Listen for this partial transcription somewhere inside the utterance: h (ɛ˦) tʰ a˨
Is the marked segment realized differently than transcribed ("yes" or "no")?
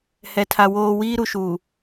yes